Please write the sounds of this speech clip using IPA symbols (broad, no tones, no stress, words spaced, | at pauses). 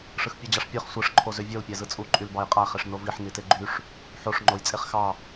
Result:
ʂɯxpʲød͡ʑɑʂpʲøχ sʷɯʂ ǃʰozøvʲol pʲæzɯt͡sʼu ǃʼylbɑjqʼæ χeʂnoviħ niteɡ͡ǃyʂ | ħoʂ ŋ͡ǃojt͡sʼeχxɑ